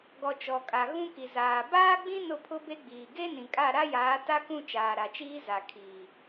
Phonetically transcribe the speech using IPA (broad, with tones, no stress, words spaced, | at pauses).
ɡɔ˨t͡ʃɔ˨kʼa˨ ɣũ˦ki˨zaː˨ baː˦ɡ͡bĩ˦ nʊ˦˨pʰʊ˦be˦ɡ͡biː˨ ɡe˦ nĩ˨kʼa˦˨ ɾa˦jaː˨˦ta˦kũ˦˨ t͡ʃaː˨ɾa˨t͡ʃiː˦ za˨kʰiː˨